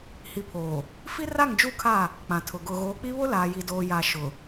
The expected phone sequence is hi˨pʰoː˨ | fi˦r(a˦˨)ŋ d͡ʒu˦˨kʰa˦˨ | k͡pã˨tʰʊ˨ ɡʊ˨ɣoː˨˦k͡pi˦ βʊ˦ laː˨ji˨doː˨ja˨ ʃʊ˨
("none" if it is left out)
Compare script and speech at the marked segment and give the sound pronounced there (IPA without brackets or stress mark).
a˦˨